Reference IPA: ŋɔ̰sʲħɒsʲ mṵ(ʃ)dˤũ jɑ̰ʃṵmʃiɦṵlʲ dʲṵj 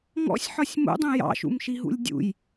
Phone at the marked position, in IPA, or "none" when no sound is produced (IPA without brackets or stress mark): none